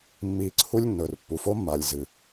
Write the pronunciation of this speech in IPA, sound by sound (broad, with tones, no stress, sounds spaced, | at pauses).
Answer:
mː iː˧ ǀʰ u˦ lʲ nː ɵ˨ r pː u˨ f o˦ mː a˨ lʲ z ɨː˨